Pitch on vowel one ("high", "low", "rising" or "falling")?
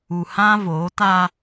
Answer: low